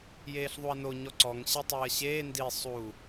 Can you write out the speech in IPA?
j eː ɬ ðˤ u ɐ̯ n o ɲ ɔ ǀ ɔ ŋ ɕ e tˤ ɨː ɐ̯ ɕ eː n d i sˤ u

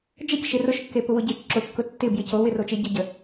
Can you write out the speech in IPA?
d͡ʒ ə c ʃ e r ʊ ʃ kː e p ʊ w ʊ ɟ e t͡ʃ ǁ ʊ kː ʊ tː ɪ b j ɪ c o w ɪ r o t͡ʃ e ɟ ə ɟ ə

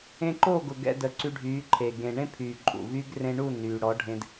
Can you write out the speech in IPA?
ẽ˧ ǃ o˦˨ ɡ ʊ˨ ɡ ɛ̰˧ d ə˨ ǀ y˧ ɖʱ yː˨˦ ǃʰ e˨ ɡ ẽ˨ ɳ ẽ˦ pʰ yː˨ ǃʼ ṵ˨ v yː˦ ɡ r ẽ˧ ɳ u˦˨ n yː˨ ɽ ɔ˨˦ ɖʱ ẽ˧ d

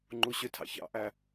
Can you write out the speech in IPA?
ŋ͡ǃ u ɕ ʏ tʰ ɑ̰ ç ɑ̰ ʔ æ

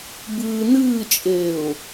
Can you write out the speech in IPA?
b ɨː n ɨː t͡ʃʼ eː ʊ̯

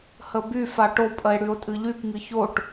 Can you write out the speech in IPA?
h ə b y f a ʈ o pʼ ə e̯ ɽ y o̯ tʼ ɨ ʎ y p ŋ ɨ ç o ʈ

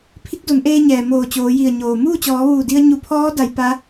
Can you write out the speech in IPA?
pʰ i˧˥ k̚ d o˩˧ n ʔ eː˧ ɲ ɛː˩ m oː˧˩ t͡ɕ oː˩˧ j i˧˩ ə̯ ɲ oː˩ m uː˥˨ t͡ɕ ɔː˩˧ ʋ uː˧˩ d i˧ ə̯ ɲ u˧˩ pʰ ɔː˧˥ d a˩˧ j p a˧˥

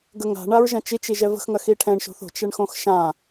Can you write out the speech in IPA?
ɡ ə ŋ a̤ ɳ a ɹ ʒ ɐ̃ t͡ʃ i t͡ʃ i ʒ ɛ v ə̤ x ŋ ɐ x i ʈʰ ɛ̃ ɳ ʃ o̤ θ o̤ t͡ʃ ɛ ɳ x õ x ʃ ã

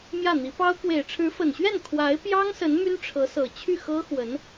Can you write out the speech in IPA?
m j ä˥˩ n̪ i˧˥ p ɑ˥ ʊ̯ k w e˨˩ ɪ̯ ʈ͡ʂʰ ɻ̩˧˥ f ə˨˩ n ɕ ɥ ɛ˥˩ n kʰ w a˧˥ ɪ̯ p j ɑ˥ ŋ s ə˧˥ n m y˥ n ʈ͡ʂʰ ɤ˧˥ s ɤ˨˩ t͡ɕʰ y˥˩ x ɤ˥ x w ə˧˥ n

